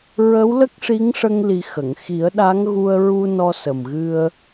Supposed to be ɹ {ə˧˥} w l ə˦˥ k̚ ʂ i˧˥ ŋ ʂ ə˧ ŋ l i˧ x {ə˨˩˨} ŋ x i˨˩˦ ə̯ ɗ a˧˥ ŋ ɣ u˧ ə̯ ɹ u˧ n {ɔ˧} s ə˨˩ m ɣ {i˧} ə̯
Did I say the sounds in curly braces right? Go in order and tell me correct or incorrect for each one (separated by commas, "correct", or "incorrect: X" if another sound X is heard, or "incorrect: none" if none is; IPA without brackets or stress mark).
correct, correct, correct, incorrect: ɨ˧